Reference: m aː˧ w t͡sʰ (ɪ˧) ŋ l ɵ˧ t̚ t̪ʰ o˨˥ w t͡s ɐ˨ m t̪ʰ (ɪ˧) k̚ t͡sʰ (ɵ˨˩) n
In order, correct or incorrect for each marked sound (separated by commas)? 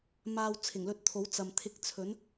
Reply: incorrect, correct, incorrect